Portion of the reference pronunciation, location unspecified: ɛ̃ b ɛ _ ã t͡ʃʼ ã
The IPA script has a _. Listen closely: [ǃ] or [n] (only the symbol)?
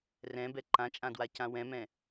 ǃ